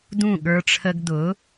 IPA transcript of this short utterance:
d ũ˥˨ ɠ ə˞˦ ʈ͡ʂʰ ə˦ ɡ d ʊ˨˥

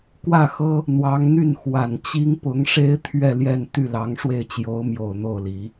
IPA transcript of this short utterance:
k w ä˥˩ x ɤ˥ | n̪ w ɑ˧˥ ŋ n̪ y˥˩ n x w a˨˩ n t͡ɕ i˥ ŋ p ʊ˧˥ ŋ ʂ e˥ ɪ̯ t̪ʰ ɥ ɛ˥˧ l j ɛ˥˧ n t̪ y˥˩ l ɑ˧˥ ŋ ʂ w e˥˩ ɪ̯ t͡ɕ j o˧˥ ʊ̯ m j o˨˩ ʊ̯ n̪ o˥˩ ʊ̯ l i˨˩˦

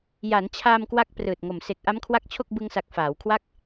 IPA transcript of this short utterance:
j a˩˦ n t͡ɕʰ aː˧ m k w a˥˩ k̚ p r ɯː˨˩ t̚ ŋ o˨˩ m s e˨˩ k̚ ʔ a˦˥ m kʰ w a˦˥ k̚ t͡ɕʰ o˥˩ k̚ b ɯ˧ ŋ s a˨˩ k̚ f aː˩˦ w kʰ w a˥˩ k̚

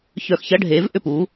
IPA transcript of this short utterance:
ç œ˧˩˧ x ç ɐ˧˥˧ ɖʱ eː˨˦ v ʔ ʏ˥˩ p u˨˦

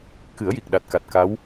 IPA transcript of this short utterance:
k ɨ˨˩˦ ə̯ j i˨˩ k̚ ɗ a˨˩ t̚ k a˨˩ t̚ k a˧˥ w

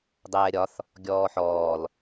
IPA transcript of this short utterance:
dˤ ɛː ɾʲ ɒ θ | ɡʲ ɔː ħ ɔː l

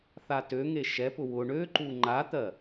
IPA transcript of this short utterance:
θ a t ø ŋ e ʃ ɛ p ʊ w ʊ ɳ ø ǃ u ŋ͡ǃ a t̪ ɜ

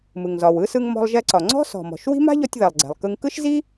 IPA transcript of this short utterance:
m ɯ˩ ŋ z ɒ˩ w ɯ˥ s ɯ˧ ŋ m ɔ̤˧ lˠ ʒ ɛ˧ ǀ ɒ˩ ŋ͡ǀ ɔ̤˥ s ɔ̤˩ m ɔ̤˩ ʃ w i̤˥ m a̤˥ ʎ ɔ˧ tʲ ð ɛ˩ lˠ ɡ͡ǀ ɛ̤˩ lˠ k ɯ˧ ŋ k ɯ˥ ʃ z i˥

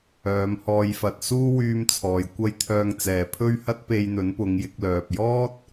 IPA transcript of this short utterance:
œː˨˧ m h ɔː˧ j f ɐ˧ t̚ s uː˥ w yː˧ m t͡sʰ ɔː˨˩ j kʷ ɐ˧ j t̪ʰ œː˨ ŋ t͡s ɛː˨˩ pʰ ɵ˥ ɥ h ɐ˥ t̚ p e˧ j n̪ ɵ˨˥ n p ʊ˨˧ ŋ j ɪ˨˥ k̚ l œː˨ p̚ j ɔː˥ t̚

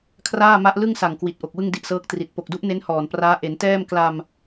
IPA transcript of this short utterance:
kʰ r aː˥˩ m a˦˥ ʔ l ɯ˥˩ ŋ s a˨˩ ŋ k w i˨˩ t̚ ʔ o˨˩ k̚ w ɯ˥˩ ŋ d i˦˥ ʔ s ɤː˦˥ k̚ t r i˨˩ t̚ p o˨˩ k̚ d u˦˥ ʔ n e˦˥ n h ɔː˨˩ n p r aː˦˥ ʔ e˩˦ n t ɛː˥˩ m k l a˧ m

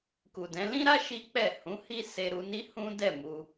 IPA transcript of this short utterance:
k u˨ d ɛ̃˨˦ l ĩ˦ ɾ a˦ ʃ i˦ k͡p ɛ˦˨ h ũ˨˦ h i˦ s e˧ ɾ u˧ n i˦ h ũ˦ d ɛ˦˨ m u˧

